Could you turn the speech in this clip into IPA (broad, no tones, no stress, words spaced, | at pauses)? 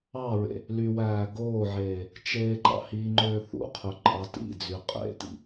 ɑɹḛ | lywæː ɡoːʕeː | t͡ʃeːǃɑ̰hiŋ͡ǃøː θṵqʰø ǃʼɑtḭd͡zy qʼḛtḭ